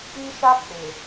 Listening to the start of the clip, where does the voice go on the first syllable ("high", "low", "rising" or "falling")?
high